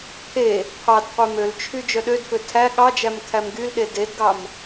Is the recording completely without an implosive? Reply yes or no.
no